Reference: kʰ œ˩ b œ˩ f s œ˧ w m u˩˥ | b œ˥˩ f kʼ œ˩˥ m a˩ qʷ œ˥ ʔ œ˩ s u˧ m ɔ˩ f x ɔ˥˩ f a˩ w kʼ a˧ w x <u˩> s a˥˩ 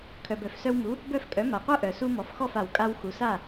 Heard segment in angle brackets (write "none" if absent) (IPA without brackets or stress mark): u˩